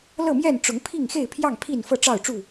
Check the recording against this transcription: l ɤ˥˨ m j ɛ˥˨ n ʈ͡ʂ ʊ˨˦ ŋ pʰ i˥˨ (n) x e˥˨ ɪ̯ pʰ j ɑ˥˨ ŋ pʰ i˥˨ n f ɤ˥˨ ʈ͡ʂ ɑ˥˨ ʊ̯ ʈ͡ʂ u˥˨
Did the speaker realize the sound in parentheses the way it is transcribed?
no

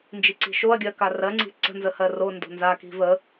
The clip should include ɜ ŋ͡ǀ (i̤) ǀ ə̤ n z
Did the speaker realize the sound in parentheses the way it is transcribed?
yes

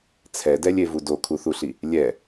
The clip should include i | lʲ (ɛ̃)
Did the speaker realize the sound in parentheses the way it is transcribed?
no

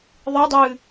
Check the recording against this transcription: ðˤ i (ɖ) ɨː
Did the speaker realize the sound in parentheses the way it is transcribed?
no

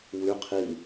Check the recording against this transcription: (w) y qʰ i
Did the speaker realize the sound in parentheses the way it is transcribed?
yes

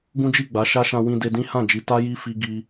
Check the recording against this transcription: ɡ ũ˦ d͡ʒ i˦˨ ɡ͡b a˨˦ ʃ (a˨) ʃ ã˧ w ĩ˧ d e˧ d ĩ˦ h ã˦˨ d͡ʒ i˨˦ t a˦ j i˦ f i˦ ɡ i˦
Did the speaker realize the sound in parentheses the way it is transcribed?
no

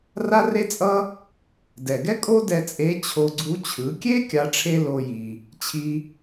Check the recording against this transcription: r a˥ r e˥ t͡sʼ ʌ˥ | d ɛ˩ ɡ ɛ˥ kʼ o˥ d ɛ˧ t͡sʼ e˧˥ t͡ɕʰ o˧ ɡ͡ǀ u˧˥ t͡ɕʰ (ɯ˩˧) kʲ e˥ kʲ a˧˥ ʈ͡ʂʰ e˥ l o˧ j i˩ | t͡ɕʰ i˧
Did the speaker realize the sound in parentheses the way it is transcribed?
yes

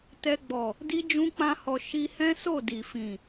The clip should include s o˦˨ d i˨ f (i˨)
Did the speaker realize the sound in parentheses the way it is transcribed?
no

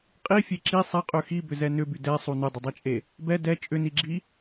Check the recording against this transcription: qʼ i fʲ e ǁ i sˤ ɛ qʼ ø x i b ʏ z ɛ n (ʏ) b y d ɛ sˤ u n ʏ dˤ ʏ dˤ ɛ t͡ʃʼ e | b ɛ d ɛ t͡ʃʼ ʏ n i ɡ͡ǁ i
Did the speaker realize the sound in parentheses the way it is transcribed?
yes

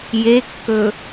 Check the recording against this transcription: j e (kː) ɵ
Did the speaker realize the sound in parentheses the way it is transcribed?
yes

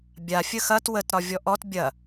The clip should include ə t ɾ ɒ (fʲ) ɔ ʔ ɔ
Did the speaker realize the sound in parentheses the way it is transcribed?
no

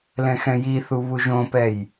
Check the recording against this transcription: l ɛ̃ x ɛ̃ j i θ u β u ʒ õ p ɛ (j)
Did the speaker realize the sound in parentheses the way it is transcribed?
yes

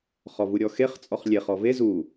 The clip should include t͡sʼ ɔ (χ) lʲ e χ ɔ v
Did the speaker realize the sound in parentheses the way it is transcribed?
yes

